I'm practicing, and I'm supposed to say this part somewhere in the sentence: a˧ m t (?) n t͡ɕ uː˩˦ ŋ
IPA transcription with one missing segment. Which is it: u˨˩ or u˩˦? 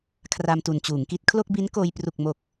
u˨˩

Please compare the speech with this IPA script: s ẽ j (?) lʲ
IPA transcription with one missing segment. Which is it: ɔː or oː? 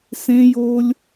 oː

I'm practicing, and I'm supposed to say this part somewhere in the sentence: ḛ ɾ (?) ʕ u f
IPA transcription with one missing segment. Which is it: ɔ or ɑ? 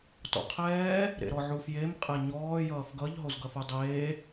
ɔ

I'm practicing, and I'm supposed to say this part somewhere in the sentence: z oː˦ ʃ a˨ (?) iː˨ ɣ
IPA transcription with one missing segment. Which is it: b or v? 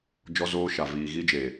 v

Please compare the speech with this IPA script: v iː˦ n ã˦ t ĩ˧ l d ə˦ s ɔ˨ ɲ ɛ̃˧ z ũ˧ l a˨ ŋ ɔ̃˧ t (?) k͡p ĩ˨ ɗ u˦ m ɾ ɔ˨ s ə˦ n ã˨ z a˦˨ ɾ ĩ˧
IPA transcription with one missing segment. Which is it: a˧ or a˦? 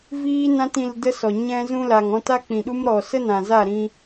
a˦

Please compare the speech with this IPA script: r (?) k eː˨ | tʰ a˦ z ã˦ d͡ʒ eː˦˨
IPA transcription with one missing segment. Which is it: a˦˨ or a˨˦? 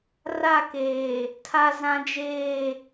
a˦˨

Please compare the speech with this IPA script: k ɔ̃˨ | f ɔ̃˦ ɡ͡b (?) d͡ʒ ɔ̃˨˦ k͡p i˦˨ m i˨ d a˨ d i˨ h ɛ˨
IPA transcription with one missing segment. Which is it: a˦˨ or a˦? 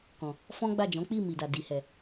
a˦˨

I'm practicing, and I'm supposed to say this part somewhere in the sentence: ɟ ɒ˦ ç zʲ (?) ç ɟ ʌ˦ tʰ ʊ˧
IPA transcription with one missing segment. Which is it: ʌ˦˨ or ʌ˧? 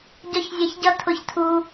ʌ˧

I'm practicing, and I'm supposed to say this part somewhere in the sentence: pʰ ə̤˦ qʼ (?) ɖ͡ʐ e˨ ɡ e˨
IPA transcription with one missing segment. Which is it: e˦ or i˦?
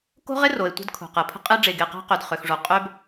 e˦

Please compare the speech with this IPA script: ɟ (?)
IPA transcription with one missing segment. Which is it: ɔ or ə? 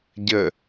ə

